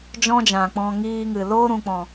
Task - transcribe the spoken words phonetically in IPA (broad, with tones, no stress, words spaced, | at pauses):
d͡ʒɔ̃˦d͡ʒã˨k͡pɔ̃˧ ŋiː˧ŋɨ˨ loː˦ɾũ˨k͡pɔ̃˨